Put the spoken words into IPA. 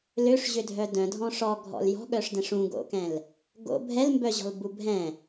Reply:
l ø ʂ ʑ ø dʱ œ d œ̃ dʱ ɔ̃ ʂ ɔ ɡʱ ɔ̰ l j ɔ̤ ɠ œ ʂ d ɛ̃ ʂ ũ ɡ o̰ k ɛ̃ l | ɡ o̰ bʱ ɛ l m b œ ʑ ɔ̤ l b u bʱ ɛ̃

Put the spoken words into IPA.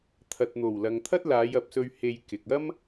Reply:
t̪ʰ ɐ˨ t̚ n̪ o˨˩ w l ɐ˨ ŋ t̪ʰ ɐ˥ t̚ l aː˨˧ j ɐ˨ p̚ s ɵ˧ ɥ h e˧ j k ɪ˨ k̚ ɐ˥ m

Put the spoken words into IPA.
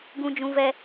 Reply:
ɡ ũ˦ d͡ʒ ũ˦ v ɛ˦

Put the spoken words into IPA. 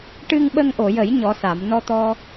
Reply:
ʈ ɨ˧ ŋ ɓ ə˧ ŋ ʔ o˨˩˨ j ə˨˩˦ j ɲ ɔ˧˥ s a˨˩˦ m n ɔ˧ t̪ ɔ˧

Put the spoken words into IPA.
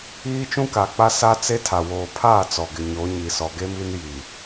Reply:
iː˦ t͡ʃ ũ˦ k a˨ k͡p a˦ s a˦ t͡s e˦ tʰ a˨ w oː˨ pʰ aː˦˨ t͡s ɔ˨ ɡ ɪ˨ ɲ o˨˦ ɲ i˨ s ɔ˨ ɡ e˦ m i˦ n j i˨

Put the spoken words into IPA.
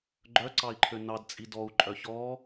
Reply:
ɡ͡ǃ œ ǀ ɑ i̯ ǃʰ ø n ɑ d t͡sʼ i d ɔ u̯ ǃʼ œ ç ɔ

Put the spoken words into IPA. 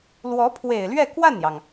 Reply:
l w ɔ˧˥ pʰ w e˨˩ ɪ̯ l ɥ ɛ˥˧ k w a˥˩ n j ɑ˩ ŋ

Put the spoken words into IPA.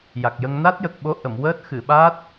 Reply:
j a˨˩ k̚ j ə˧ ŋ n a˦˥ t̚ j ə˨˩ k̚ ɓ o˧˥ ʔ ə˨˩˨ m w əː˦˥ t̚ x ɨ˨˩˨ ɓ a˦˥ t̚

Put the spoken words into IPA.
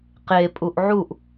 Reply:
q e pʼ u ʔ ʕ u ʔ

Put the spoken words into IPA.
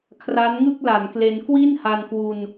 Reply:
kʰ r a˦˥ n ŋ ɯ˥˩ k̚ l a˩˦ n k l e˧ n k w i˥˩ n h a˧ n k w u˧ n

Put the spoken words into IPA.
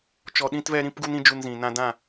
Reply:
t͡ʃ ɔ˧ ɗ ĩ˦ t v ɛ˦ ɾ ĩ˦ p ɡ u˦ n ĩ˦ d͡ʒ u˧ n z ĩ˨ n ã˧ d ã˦˨

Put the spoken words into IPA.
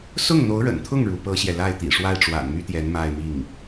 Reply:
s ʊ˥˩ ŋ n̪ o˧˥ ʊ̯ ɻ ə̰˨˩ n t̪ʰ ʊ˥˩ ŋ ɻ u˧˥ p ɤ˥ ɕ j ɛ˨ l a˥˩ ɪ̯ t̪ ḭ˨˩ ʂ w a˥˩ ɪ̯ ʈ͡ʂ w a̰˨˩ n m y˥ t̪ j ɛ˧˥ n m a˥˧ ɪ̯ m i˥˩ ŋ

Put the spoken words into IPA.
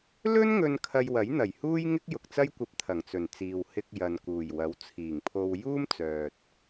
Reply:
l ɵ˥ n ŋ ɵ˧ n kʰ ɐ˧ j w ɐ˨˥ j n̪ ɐ˨˩ j h uː˥ j ŋ ɪ˥ k̚ j ʊ˨ k̚ t͡s ɐ˥ j kʷ ɐ˧ p̚ t̪ʰ ɐ˨˩ ŋ t͡s ɵ˨˩ n t͡s iː˨ w h ɪ˧ k̚ j ɐ˨ n k uː˨˩ j w ɐ˨˥ w t͡sʰ iː˨˩ ŋ pʰ o˧ w j uː˥ m t͡s œː˨ t̚

